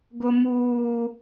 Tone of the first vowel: high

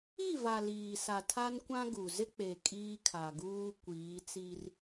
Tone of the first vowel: falling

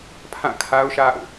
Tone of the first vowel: falling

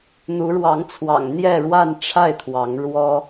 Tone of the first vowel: rising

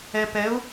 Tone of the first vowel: low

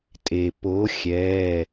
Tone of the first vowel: low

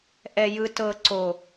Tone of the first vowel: low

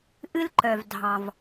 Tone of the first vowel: high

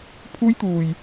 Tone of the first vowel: high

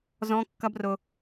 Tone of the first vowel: high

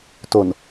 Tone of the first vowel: low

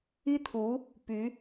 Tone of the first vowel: high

